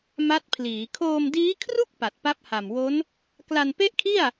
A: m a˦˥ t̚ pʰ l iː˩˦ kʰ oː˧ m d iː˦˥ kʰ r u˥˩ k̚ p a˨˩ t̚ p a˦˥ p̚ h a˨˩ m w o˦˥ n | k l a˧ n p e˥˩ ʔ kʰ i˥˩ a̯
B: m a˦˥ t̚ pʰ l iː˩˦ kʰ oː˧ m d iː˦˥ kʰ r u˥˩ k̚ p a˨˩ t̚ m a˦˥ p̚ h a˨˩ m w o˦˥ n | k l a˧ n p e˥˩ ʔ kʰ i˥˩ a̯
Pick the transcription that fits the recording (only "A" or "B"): A